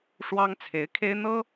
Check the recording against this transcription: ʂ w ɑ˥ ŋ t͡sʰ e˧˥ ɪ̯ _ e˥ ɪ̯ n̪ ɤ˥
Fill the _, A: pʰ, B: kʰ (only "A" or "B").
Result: B